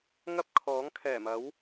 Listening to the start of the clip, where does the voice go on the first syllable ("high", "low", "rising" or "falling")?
high